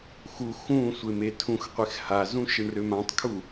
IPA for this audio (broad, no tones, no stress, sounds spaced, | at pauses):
x u x ũ sʷ e m e tʰ ũ x qʷ e x h a z ũ ʃ e ɳ r ø m ã tˤ kʰ u